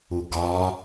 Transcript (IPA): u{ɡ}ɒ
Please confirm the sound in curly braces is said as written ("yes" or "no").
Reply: yes